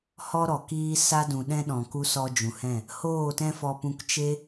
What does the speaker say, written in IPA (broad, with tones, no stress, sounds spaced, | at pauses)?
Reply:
h ɔ˦ ɾ ɔ˨ k iː˦ s a˧ d ũ˨ ɗ ɛ̃˧ ɗ ɔ̃˨ k u˧ s ɔ˧ d͡ʒ ũ˨ h ɛ̃˦˨ | h oː˦˨ t ɛ̃˦ f ɔ˧ p ũ˧ k t͡ʃ e˦